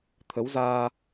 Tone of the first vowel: rising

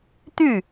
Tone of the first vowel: falling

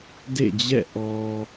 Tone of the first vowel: falling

